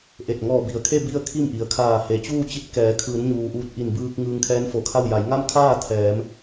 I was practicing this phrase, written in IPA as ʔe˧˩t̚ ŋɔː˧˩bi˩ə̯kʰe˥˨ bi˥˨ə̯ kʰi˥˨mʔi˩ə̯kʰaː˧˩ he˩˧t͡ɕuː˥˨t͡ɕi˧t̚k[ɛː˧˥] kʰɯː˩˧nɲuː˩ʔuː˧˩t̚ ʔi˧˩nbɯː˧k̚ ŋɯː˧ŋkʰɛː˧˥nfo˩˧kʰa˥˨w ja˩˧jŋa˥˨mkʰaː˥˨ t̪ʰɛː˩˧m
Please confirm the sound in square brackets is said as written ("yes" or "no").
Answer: no